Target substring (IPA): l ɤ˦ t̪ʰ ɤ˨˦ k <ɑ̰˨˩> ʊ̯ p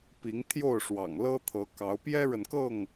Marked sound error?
yes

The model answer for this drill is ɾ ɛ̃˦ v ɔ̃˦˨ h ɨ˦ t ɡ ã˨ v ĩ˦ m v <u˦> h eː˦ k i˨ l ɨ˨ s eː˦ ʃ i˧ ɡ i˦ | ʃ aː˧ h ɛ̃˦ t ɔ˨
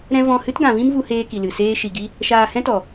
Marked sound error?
no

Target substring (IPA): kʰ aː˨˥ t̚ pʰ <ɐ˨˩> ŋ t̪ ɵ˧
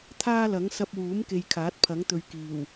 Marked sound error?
yes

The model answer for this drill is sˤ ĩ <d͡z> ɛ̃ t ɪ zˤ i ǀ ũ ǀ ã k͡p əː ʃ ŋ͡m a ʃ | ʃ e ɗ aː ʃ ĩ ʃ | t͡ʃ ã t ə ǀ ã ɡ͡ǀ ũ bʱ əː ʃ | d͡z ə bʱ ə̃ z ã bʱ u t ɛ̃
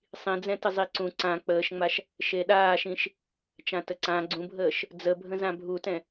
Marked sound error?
no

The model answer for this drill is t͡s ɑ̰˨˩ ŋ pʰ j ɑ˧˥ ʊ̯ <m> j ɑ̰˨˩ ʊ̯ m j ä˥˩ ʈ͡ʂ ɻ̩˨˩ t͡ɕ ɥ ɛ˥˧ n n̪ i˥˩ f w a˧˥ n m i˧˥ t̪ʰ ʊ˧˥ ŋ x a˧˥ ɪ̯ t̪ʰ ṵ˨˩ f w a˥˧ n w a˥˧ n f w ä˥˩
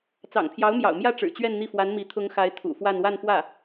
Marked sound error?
no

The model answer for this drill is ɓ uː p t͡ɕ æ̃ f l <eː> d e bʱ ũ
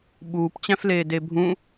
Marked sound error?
no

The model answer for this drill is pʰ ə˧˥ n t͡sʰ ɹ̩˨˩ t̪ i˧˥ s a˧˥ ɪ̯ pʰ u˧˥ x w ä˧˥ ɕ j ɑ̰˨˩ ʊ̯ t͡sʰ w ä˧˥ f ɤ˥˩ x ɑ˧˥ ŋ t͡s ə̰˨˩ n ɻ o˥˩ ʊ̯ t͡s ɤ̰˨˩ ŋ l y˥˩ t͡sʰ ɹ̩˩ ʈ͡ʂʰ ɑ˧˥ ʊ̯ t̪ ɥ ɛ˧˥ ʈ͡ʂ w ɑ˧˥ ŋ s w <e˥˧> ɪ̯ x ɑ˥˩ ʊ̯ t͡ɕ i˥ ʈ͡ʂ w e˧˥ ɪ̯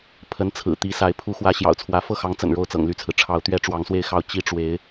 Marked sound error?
no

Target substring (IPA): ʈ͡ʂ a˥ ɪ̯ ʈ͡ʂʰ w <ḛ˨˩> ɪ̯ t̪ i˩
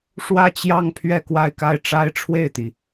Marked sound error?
yes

